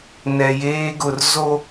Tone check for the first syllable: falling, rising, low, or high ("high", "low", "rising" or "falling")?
low